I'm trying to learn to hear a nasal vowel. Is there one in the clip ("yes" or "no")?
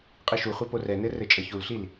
no